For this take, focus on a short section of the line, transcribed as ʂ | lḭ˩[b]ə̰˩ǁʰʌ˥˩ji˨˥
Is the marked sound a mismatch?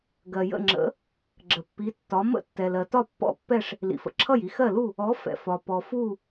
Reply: yes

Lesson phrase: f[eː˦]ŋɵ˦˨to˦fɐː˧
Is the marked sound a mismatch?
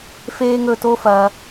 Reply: no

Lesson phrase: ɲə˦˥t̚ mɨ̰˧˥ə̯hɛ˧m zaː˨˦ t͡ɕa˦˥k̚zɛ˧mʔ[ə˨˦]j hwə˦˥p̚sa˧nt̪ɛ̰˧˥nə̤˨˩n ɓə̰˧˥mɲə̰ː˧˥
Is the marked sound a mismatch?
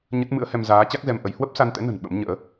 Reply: no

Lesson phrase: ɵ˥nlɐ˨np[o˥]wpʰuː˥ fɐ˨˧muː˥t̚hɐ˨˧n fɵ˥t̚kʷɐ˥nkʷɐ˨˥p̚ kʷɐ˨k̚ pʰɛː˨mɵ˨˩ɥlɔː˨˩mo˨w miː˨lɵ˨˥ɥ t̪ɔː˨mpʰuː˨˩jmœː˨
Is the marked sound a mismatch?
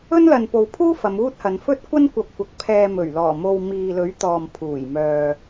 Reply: yes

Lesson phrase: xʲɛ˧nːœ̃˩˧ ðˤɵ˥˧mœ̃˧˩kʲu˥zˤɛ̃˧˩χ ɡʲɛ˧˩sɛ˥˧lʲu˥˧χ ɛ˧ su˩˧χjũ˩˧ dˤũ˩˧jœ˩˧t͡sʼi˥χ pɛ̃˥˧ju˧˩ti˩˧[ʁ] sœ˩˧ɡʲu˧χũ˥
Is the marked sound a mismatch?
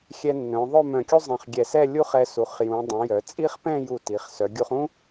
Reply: yes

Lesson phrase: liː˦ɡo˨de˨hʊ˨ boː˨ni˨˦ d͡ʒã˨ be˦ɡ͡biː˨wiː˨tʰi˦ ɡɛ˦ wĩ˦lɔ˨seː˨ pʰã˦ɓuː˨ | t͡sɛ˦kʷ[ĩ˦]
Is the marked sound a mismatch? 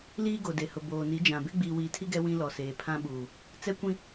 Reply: no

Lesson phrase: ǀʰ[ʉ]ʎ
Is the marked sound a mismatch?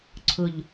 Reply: yes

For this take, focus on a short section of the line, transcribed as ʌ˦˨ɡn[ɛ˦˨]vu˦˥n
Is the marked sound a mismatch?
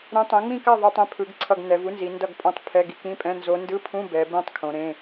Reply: yes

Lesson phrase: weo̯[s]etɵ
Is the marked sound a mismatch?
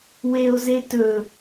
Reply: yes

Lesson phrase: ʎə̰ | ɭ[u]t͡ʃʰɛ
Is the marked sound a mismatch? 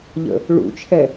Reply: yes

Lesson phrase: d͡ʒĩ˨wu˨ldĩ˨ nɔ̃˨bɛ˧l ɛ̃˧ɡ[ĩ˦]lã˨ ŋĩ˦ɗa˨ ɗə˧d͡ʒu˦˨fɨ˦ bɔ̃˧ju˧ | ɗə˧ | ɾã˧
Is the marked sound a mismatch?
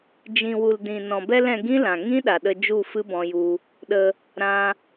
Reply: no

